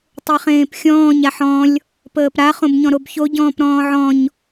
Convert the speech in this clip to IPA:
tˤeχẽːpxʲɔ̃ːɲ aħɔ̃lʲ | pəːpɾa χõbɲɔ̃ɾobço ɟɔ̃ːpɾɔ̃ːʕɔ̃ɲ

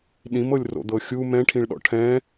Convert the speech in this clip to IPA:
ɗĩmɤlʲro̰d̪ɤ xʲu mɛ̃ʈʰĩɭɗɔ̰ ʈʰɛ̃

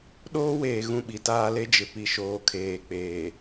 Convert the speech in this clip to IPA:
ɗoː˦weː˨ɣũ˨ ɓi˨taː˦ le˦d͡ʒɪ˨ pi˨ʃoː˨kʰeː˨ k͡peː˨

